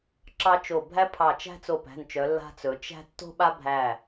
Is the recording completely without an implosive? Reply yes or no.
no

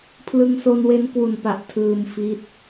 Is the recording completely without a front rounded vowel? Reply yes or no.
yes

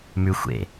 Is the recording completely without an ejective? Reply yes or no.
yes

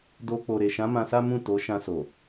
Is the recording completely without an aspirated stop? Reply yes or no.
yes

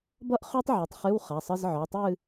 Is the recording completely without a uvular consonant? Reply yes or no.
no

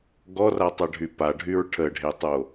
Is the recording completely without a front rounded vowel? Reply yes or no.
no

